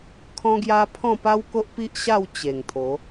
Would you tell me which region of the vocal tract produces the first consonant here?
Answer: velum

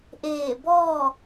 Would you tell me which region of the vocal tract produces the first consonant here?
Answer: throat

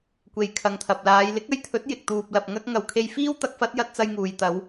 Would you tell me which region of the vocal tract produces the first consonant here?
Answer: velum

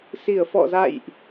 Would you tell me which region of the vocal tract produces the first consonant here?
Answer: tongue tip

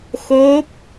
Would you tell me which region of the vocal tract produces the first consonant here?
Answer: velum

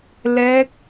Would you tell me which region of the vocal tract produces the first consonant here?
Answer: tongue tip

